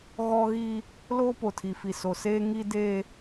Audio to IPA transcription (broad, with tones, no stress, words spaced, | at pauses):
ɣɔ˦ɣi˦ | loː˦po˨tʰi˨fi˨ so˨seː˦ ŋi˦deː˦